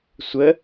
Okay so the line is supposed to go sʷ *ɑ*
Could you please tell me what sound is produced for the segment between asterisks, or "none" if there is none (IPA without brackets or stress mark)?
ə